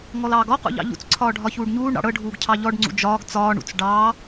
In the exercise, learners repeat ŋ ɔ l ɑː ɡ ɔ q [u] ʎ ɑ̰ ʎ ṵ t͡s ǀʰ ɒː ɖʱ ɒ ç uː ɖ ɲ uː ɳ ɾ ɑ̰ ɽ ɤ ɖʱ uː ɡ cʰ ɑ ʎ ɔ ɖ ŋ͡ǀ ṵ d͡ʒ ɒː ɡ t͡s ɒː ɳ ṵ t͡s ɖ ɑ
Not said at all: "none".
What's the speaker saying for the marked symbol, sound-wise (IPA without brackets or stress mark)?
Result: ṵ